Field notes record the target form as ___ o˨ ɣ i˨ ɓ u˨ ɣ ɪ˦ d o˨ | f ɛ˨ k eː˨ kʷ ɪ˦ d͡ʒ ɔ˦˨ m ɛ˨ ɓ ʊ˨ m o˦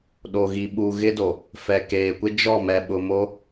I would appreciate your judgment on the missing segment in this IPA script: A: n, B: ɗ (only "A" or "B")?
B